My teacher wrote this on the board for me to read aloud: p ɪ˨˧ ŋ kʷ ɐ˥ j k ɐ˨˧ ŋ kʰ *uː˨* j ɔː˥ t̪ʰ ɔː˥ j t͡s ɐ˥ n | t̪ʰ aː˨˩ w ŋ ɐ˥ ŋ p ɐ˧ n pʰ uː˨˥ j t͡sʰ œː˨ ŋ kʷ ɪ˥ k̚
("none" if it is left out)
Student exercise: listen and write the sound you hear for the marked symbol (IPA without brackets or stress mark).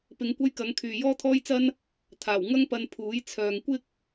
yː˨